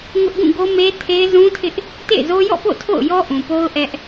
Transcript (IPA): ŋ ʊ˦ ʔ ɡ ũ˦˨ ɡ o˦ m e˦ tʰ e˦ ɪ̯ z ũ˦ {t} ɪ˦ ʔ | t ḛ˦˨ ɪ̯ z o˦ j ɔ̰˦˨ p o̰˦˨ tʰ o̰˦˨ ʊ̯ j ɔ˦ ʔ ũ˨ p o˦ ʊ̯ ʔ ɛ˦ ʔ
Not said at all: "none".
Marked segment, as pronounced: tʰ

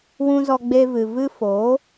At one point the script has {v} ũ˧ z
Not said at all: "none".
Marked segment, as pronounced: w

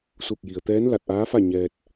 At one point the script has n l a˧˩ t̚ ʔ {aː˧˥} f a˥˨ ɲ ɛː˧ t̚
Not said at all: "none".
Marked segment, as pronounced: aː˧˥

